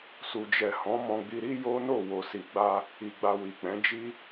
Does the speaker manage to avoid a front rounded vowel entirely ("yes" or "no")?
yes